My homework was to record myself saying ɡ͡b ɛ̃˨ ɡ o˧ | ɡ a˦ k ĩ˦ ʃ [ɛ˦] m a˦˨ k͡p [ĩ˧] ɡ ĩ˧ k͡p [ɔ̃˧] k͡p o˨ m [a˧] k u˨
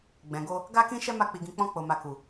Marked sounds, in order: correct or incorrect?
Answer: correct, incorrect, correct, incorrect

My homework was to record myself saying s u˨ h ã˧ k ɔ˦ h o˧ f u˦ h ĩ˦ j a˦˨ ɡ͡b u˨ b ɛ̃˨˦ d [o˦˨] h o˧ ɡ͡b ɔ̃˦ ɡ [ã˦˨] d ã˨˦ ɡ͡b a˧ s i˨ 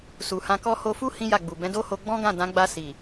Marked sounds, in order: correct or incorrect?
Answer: incorrect, correct

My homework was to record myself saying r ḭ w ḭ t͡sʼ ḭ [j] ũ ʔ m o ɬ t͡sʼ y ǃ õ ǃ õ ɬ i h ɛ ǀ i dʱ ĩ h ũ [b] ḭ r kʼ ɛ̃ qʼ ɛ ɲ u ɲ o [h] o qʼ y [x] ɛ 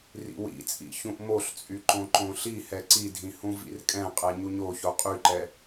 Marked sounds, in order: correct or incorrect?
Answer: incorrect, incorrect, incorrect, incorrect

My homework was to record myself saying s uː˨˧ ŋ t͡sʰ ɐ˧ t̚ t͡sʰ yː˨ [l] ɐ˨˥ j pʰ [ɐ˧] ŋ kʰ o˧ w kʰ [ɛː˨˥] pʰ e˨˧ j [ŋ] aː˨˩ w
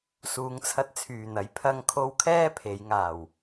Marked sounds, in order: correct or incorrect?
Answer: incorrect, correct, incorrect, correct

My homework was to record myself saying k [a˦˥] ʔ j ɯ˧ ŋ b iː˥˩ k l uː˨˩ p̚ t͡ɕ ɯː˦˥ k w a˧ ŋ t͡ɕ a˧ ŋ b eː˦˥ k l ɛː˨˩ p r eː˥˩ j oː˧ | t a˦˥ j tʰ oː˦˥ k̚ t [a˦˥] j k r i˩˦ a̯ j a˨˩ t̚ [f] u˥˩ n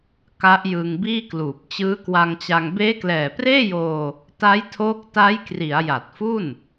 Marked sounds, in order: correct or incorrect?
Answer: correct, correct, correct

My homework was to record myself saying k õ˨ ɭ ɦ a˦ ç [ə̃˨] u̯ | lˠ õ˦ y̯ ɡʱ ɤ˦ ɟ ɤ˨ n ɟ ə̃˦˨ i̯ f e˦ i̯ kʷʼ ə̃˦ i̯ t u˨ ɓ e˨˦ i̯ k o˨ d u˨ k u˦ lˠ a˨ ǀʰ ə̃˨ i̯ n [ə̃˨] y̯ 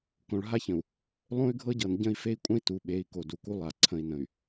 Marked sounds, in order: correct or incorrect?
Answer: correct, correct

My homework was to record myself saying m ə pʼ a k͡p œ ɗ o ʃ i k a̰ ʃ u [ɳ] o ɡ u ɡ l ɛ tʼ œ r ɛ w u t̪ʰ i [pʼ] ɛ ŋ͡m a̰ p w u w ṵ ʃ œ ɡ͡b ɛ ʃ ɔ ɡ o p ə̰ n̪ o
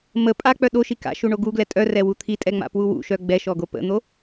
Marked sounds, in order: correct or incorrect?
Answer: correct, incorrect

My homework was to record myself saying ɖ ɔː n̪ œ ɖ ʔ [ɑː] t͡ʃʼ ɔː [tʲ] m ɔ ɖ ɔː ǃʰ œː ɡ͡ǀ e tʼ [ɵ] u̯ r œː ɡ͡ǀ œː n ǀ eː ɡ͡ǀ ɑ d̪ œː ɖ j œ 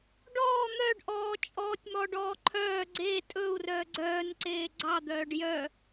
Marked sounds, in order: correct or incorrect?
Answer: incorrect, correct, correct

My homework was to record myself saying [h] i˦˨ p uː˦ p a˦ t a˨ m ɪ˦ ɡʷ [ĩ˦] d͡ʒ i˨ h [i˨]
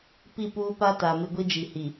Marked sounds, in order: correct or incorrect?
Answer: incorrect, incorrect, correct

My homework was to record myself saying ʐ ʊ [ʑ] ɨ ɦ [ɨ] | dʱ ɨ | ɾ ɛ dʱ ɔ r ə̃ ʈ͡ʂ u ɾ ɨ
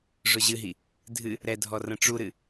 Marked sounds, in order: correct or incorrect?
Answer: correct, incorrect

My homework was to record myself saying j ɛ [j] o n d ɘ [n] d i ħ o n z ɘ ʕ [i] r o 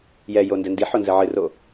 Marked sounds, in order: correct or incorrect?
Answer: correct, correct, incorrect

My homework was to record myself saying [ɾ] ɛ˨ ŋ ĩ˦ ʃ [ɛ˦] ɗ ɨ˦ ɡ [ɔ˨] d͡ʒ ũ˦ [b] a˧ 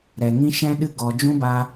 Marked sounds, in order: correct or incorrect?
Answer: correct, incorrect, correct, correct

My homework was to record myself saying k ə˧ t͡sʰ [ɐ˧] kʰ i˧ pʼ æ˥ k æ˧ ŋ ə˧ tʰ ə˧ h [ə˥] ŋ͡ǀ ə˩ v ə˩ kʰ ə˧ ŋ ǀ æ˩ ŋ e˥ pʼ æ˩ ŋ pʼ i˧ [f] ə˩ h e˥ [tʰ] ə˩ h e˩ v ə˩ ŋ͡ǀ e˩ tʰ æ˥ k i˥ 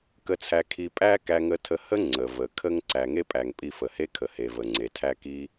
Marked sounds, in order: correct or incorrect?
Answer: incorrect, correct, correct, incorrect

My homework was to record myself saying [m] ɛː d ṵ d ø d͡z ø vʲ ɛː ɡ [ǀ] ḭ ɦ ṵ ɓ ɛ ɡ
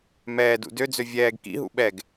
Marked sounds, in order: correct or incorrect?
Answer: correct, incorrect

